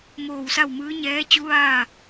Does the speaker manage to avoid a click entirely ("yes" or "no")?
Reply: yes